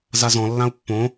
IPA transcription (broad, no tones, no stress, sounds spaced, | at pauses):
z a z ɔ̃ lː ã u̯ pː õ